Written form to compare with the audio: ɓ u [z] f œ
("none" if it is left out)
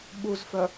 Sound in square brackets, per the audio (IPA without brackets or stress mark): z